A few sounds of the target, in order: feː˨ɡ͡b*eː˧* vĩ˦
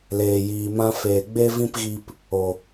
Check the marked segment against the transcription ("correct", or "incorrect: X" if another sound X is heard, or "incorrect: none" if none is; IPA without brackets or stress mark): incorrect: e˧